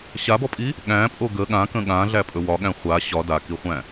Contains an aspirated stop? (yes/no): no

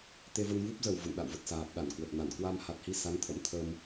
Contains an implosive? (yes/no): yes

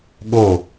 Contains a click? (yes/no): no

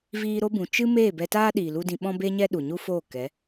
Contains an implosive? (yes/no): yes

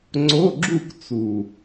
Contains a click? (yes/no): yes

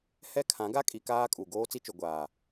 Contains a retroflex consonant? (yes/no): no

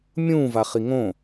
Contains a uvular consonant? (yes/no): yes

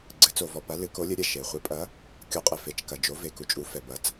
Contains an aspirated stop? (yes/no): no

